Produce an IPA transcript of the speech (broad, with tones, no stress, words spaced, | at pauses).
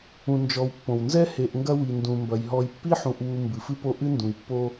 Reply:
ũ˨nd͡ʒɔ˨wpːõ˩w nzɛ˥he˨ʔŋɡɐ˦ wi˩ndũ˩mbɐ˩j ɦɔ˨jpːi˥ħũ˨ʔ wu˨ mbɨ˩fɨ˥po˦ ʔɨ˥ ndũ˩jpːo˦